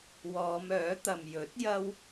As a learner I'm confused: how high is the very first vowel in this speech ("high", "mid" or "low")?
mid